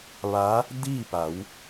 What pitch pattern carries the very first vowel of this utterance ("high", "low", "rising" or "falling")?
rising